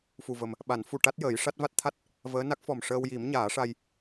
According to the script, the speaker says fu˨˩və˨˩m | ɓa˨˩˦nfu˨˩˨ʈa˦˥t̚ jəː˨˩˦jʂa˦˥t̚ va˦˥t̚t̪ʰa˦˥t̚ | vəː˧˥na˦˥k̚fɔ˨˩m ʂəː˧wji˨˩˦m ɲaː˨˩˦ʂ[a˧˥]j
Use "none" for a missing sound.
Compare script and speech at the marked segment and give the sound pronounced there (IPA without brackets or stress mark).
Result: a˧